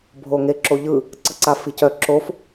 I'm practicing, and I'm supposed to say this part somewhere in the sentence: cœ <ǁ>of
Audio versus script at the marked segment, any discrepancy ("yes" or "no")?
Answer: no